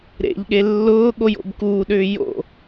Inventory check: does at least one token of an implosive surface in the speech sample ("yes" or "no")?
yes